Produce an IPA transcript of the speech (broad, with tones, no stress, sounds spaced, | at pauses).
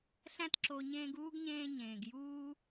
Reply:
ɬ æ̃˦ t ǁ o˨ ɲ ẽː˦ ɡ uː˥ ɡ ɲ ẽː˦ ɲ ẽː˩ ɡ j uː˥